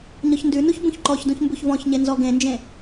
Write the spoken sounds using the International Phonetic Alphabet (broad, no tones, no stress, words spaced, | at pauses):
ɲɔçndʉnuç bũçǃɔçdũç mbuçvɔ̃çɲe nzɔɡẽnd͡ʒẽ